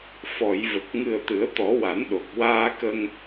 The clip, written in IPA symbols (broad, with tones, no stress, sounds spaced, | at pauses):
f ɔ˨˩˨ j v ə˨˩ k̚ ŋ ɨ˨˩ ə̯ t̪ ɨ˨˩˦ ə̯ t̪ ɔ˨˩˦ w a˨˩˦ n ɗ o˨˩ k̚ w aː˧ k ə˧ ŋ